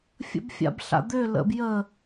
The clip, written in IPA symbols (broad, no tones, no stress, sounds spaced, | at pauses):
fʲ ə̰ b fʲ a̰ b ɬ a̰ d̪ ø l ə̰ b j ə